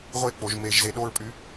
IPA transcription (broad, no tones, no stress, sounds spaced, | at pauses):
ʁʷ e k͡p o ʒ m e ʒ z e ɗ o ɹ pʼ y